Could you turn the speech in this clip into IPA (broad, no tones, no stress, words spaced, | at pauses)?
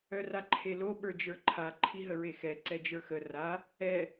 œraǃʰelo ɓə˞d͡ʒə˞ǃʰa ǃʰiɦəɹexɛ ǀɛd͡ʒə˞xə ra | ɛ